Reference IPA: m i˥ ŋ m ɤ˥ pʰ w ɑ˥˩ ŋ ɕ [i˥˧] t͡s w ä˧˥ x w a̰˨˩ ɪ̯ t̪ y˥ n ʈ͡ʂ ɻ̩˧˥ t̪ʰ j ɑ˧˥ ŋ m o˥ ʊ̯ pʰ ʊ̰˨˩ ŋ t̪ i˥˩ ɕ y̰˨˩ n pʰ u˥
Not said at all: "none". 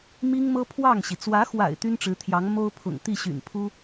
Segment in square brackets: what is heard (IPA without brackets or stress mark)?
i˩